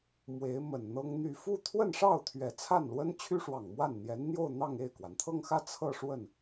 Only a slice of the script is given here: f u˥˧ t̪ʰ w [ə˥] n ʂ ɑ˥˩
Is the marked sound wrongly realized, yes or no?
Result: yes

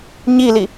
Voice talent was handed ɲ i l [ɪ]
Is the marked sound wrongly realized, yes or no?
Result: yes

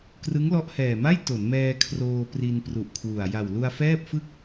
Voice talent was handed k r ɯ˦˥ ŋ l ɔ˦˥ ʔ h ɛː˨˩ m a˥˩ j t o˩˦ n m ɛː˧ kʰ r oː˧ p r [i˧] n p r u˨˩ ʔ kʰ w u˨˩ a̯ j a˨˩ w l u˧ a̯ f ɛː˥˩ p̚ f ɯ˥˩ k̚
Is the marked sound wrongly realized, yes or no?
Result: no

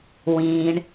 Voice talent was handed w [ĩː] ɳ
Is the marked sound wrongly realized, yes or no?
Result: no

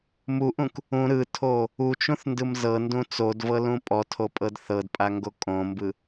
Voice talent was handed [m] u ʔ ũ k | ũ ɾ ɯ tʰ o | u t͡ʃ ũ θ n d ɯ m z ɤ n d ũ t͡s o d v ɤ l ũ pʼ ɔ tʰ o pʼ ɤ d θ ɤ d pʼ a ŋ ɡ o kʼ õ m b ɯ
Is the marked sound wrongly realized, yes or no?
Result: no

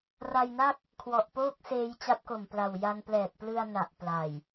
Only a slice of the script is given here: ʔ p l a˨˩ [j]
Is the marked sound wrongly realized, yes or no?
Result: no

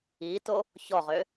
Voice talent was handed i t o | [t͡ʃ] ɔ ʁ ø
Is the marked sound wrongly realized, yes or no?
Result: yes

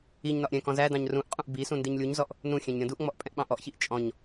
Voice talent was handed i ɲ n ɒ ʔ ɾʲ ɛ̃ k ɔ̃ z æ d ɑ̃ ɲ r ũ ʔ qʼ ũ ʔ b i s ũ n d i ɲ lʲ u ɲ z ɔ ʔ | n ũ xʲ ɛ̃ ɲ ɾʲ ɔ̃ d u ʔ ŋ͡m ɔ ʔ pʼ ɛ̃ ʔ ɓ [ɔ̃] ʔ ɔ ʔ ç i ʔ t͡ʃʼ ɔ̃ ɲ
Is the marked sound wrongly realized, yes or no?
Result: yes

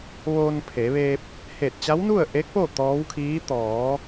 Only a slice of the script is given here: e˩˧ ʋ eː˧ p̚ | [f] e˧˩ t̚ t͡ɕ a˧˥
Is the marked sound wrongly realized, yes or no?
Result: yes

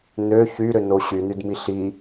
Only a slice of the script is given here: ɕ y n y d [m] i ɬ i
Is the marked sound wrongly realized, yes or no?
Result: no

